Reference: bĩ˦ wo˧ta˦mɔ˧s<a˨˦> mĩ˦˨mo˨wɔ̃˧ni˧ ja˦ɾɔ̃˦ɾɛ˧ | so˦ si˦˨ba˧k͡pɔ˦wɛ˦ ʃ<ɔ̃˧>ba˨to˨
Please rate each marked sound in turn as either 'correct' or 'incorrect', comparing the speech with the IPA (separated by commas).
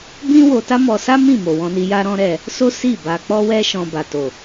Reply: incorrect, correct